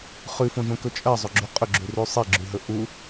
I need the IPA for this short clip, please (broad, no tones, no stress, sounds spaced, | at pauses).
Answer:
χ ʉ f õ ʒ õ k ɵ t͡ʃʼ ɜ zˤ ɵ ɡ͡ǁ ʉ qʼ ɵ ɡ͡ǁ ʉ r ʉ sˤ i ɡ͡ǁ ʉ ɦ ɵ ʔ u